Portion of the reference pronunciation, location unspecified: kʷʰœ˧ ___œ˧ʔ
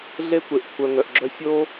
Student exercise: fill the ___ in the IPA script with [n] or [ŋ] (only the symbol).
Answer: ŋ